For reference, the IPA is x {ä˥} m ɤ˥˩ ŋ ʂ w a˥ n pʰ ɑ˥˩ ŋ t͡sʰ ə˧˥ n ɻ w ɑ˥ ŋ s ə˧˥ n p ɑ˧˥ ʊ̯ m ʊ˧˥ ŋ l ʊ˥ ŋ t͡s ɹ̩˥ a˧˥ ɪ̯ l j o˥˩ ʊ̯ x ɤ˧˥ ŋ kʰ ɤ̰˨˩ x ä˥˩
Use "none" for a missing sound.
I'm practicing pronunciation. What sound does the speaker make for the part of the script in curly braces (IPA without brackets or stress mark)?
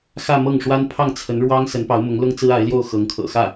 ä˥˧